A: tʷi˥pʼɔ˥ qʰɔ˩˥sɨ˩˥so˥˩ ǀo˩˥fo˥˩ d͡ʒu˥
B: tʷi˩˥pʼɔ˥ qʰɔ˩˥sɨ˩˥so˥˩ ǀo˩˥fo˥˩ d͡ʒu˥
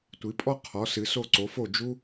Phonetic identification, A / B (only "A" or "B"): B